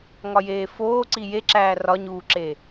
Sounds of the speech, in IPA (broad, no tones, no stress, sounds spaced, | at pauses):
ŋ ɒ j eː f oː ǀ i j e ǁ æː r ɒ ɲ uː ǁ e